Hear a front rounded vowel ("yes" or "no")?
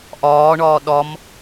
no